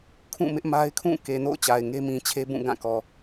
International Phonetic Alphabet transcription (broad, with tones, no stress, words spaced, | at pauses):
kʰũ˦˨mɪ˦ʔma˦ɪ̯ kʰũ˦˨ke˨no̰˦˨ʊ̯ t͡ɕa˨ɪ̯ŋe˦mĩ˨t͡ɕʰe˦ bũ˦˨ɡã˦˨kɔ˨